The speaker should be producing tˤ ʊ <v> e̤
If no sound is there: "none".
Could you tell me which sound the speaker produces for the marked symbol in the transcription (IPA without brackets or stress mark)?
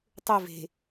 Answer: v